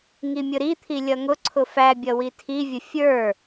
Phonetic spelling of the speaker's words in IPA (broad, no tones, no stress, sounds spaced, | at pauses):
ŋ i mʲ ʊ ɾ i t̪ʰ i lʲ ʌ ŋ ʊ ǀʰ ʊ f æ bʲ ʌ w i tʰ i vʲ ʊ fʲ ə˞